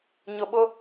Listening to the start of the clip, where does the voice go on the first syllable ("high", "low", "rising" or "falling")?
low